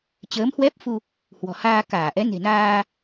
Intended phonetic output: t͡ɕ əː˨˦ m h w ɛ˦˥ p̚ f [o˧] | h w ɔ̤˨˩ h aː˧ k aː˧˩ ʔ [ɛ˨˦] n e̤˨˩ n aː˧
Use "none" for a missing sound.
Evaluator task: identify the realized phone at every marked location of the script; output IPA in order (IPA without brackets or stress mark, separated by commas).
u˧, ɛ˨˦